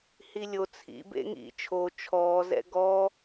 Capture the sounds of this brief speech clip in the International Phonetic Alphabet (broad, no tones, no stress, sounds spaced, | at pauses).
h i lʲ o t͡sʰ ḭ b ḛ ŋ ḭ t͡ʃʰ o t͡ʃʰ ɔː z ɛ̰ ɡ ɔ